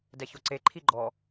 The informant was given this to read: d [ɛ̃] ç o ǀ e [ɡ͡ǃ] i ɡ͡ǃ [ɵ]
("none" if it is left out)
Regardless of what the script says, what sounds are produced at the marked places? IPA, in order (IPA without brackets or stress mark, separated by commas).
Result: ɛ, ǃʰ, ɔ